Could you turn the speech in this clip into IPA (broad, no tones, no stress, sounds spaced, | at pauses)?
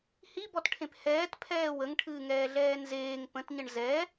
h i b ɔ t ʈʰ ẽ p h ɛː t pʰ ɛː w ə ŋ ʈʰ ɨː ŋ ɛː ɮ ɛː n z eː ŋ p ə̃ t ɲ ə ɳ z ɛ